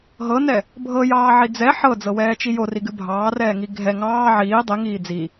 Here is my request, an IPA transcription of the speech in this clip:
ɦ ɤ n ɛ | bʱ ɤ j ɑː ʕ i d͡z ɛ ħ ɤ d͡z ɤ w ɛː t͡ʃ i j o r i ɡ ɨ bʱ ɑː r ɛː ŋ i ɡʱ ɛ ŋ ɑː ʕ iː dˤ i ŋ iː d͡z i

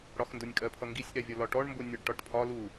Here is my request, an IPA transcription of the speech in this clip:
ɽ ɒ x n d ʊ nʲ kʼ ɜ pʰ ʌ ŋ ɡ i sʲ ʔ ɛ vʲ ʌ l ɒ ʈ ɔ ɳ m b ʊ nʲ ʌ ɖ ʈ ɒ ʈ pʰ ɒ l u

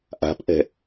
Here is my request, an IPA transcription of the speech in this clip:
ʔ a̤ p ʔ ɛ̤

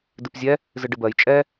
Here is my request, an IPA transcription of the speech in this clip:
d ɨ p zʲ ɛ | z ɨ ɖ ɨ b ɜ j t͡ʃʼ ɛ

